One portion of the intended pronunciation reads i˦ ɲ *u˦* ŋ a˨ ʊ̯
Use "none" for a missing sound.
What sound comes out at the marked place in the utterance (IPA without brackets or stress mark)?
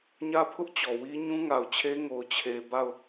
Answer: ũ˦